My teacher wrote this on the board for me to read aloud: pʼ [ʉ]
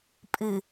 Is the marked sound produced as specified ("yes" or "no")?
no